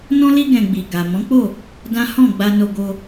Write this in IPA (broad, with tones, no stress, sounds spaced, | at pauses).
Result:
n ɔ̃˦ l i˦ ɡ ɛ̃˧ ɡ͡b i˨ ɡ a˨ m ɔ̃˨˦ k͡p o˦˨ | d ã˦ h ɔ̃˦˨ ɡ͡b a˧ n o˧ ɡ o˧